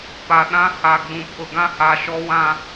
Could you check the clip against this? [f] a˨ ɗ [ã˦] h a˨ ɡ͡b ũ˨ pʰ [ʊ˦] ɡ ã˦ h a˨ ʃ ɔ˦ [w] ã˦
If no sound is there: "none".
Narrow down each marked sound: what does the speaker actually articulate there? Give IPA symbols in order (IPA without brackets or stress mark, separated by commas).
p, ã˦, ʊ˨, w